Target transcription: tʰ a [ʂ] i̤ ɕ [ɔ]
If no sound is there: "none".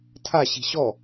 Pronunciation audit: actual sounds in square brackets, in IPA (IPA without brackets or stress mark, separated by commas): ɕ, ɔ